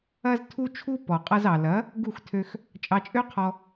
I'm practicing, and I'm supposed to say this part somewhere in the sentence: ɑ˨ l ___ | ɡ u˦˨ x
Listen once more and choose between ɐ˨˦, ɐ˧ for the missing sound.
ɐ˨˦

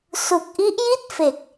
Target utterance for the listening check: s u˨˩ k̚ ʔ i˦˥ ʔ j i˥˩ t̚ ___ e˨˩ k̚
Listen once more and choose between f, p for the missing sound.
f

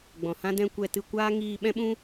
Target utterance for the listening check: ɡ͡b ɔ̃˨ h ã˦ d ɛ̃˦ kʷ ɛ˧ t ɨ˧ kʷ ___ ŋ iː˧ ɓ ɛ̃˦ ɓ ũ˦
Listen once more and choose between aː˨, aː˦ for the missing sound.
aː˦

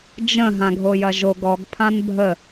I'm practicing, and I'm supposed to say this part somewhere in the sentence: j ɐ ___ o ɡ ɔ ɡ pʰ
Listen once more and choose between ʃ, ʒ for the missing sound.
ʒ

